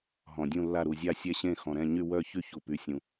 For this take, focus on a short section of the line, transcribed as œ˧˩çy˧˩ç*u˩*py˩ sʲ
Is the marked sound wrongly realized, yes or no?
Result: no